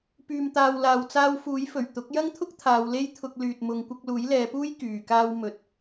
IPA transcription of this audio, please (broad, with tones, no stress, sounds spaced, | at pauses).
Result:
p yː˨ m t̪ aː˨ w l aː˨ w t͡s aː˧ w f uː˨˥ j f ɵ˨˩ ɥ t̪ ʊ˨˥ k̚ j ɐ˥ ŋ t̪ʰ ʊ˥ k̚ t̪ʰ aː˨˧ w l e˥ j t̪ʰ ʊ˧ k̚ l yː˨ t̚ m ʊ˨˧ ŋ kʷ ɐ˧ k̚ l uː˨˥ j l ɛː˨˧ p uː˥ j k yː˨ k aː˥ w m ɵ˧ t̚